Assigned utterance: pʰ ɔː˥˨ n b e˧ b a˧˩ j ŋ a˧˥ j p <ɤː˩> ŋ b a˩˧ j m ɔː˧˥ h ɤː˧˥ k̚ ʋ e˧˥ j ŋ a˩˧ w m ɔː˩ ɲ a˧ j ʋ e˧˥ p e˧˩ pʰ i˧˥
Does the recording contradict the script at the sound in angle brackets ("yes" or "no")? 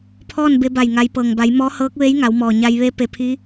no